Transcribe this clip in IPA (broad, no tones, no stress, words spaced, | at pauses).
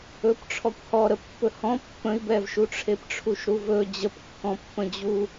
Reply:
ɵpʈ͡ʂʰɔkʷ hɔ ɾəpːɵhɔ̃ pːə̃i̯bɛvʃu ʈ͡ʂʰepʈ͡ʂʰuʃɾuvɵ d͡ʑəpkːɔ̃pːə̃d͡ʑu